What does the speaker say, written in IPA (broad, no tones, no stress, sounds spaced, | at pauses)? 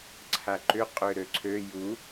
ǀʰ a ǃ ʏ qʼ ʏ ɾ ø ǀʰ ø j u